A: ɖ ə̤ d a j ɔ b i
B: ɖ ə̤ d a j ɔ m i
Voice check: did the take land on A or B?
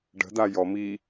B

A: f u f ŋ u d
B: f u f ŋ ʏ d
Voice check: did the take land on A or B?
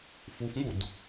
A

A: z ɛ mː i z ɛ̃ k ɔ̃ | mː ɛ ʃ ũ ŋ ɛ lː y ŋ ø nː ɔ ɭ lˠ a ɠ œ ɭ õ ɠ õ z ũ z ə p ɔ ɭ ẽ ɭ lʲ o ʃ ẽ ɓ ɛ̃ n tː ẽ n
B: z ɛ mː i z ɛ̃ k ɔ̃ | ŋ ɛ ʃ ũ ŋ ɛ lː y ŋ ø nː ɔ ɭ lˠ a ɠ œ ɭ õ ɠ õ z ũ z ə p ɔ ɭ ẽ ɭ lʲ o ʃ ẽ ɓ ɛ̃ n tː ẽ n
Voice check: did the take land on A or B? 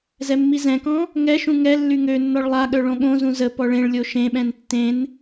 B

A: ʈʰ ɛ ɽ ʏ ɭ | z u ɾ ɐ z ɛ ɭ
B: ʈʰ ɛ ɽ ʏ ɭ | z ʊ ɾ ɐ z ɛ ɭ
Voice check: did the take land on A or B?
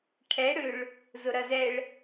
B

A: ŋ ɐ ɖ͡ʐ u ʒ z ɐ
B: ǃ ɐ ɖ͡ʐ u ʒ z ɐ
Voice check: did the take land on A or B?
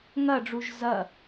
A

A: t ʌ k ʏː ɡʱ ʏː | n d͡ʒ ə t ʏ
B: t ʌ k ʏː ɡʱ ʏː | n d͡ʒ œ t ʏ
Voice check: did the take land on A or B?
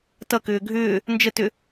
A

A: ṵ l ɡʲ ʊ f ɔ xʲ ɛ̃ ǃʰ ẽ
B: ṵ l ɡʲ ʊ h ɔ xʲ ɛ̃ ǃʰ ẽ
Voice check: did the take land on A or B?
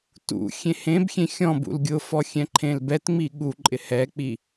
A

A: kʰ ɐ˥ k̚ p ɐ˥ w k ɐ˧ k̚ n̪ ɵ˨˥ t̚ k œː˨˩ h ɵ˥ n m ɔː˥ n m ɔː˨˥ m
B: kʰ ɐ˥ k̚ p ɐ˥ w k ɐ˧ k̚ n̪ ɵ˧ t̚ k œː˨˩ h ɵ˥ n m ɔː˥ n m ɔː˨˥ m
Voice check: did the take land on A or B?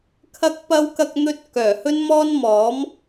B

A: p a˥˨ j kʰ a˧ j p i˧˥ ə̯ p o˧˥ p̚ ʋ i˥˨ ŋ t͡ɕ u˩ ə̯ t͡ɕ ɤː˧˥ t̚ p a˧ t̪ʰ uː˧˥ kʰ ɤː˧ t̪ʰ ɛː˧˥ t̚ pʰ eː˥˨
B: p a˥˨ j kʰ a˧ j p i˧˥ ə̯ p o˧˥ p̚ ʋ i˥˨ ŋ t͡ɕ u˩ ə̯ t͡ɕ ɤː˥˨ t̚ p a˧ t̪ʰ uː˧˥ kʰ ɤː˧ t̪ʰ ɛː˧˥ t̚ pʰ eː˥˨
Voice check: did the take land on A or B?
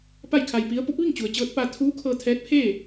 A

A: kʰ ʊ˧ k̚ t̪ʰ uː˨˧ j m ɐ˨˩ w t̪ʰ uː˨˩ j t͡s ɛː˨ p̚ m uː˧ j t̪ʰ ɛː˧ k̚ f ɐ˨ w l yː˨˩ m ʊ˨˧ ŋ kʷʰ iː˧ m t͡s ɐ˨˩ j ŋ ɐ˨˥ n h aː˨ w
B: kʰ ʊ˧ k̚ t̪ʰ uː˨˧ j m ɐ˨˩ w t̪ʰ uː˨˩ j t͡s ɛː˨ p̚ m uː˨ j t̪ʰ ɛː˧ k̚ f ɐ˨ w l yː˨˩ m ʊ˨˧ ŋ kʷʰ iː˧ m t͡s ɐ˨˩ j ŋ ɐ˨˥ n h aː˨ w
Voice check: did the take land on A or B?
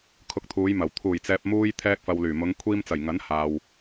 A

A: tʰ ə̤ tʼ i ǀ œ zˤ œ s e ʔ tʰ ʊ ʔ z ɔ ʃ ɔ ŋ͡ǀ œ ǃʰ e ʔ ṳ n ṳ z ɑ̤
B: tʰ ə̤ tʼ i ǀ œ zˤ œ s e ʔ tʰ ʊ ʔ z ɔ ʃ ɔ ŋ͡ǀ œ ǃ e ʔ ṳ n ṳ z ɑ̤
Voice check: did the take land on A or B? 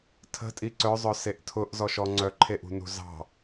A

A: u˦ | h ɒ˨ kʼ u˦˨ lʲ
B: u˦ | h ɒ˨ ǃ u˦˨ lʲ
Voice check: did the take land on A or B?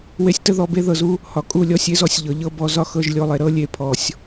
A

